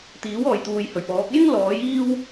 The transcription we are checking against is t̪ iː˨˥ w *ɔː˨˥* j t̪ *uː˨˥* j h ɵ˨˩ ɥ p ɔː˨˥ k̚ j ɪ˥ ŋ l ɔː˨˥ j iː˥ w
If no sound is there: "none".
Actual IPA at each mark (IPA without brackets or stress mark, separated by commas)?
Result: ɔː˨, uː˨